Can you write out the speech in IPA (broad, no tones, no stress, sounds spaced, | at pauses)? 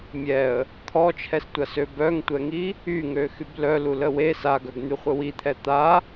mʲ ɛ ə̯ | t̪ʰ ɔ t͡ʃʰ ɛ s tʷ a s ø b œ ŋ tʷ ɛ ŋ i | y ŋ ø x y b l œ l u l ə w e s a ɡ œ ɡ n̪ y χʷ ə w i t̪ʰ ɛ t̪ a